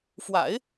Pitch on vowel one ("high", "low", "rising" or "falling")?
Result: low